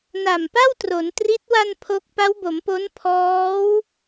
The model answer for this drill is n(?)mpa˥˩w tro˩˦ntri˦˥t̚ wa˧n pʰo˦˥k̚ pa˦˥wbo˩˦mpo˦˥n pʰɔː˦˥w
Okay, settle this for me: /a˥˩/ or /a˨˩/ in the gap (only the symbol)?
a˨˩